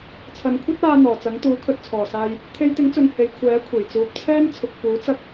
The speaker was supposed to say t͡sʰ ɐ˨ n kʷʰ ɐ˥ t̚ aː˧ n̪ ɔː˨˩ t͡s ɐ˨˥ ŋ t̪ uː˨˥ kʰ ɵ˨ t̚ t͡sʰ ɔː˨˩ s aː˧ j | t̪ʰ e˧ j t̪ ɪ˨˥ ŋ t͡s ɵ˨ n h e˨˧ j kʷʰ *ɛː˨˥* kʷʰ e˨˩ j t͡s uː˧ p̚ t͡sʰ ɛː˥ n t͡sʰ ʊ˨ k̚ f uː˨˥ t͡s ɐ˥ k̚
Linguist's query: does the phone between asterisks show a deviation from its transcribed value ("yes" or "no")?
no